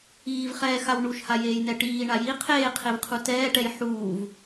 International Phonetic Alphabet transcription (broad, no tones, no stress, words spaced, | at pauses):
iːvχɛːxaw ɳuʃhajeːjnɛ ʈiːɳa ji qʰeːqʰevqʰu tɛːʈɛj ħuːv